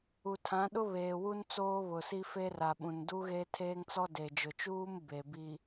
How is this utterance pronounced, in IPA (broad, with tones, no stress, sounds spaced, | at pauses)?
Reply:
u˨ tʰ ã˨˦ ɗ ʊ˦ β eː˨ w u˦ n t͡s oː˦ β ʊ˨ s i˦ f e˦ r a˨ ɓ ũ˨ n d u˦ ɣ e˦ tʰ eː˦ ŋ t͡s ɔ˦ d e˨ d͡ʒ ʊ˨ t͡ʃ uː˦ m b e˨ b i˨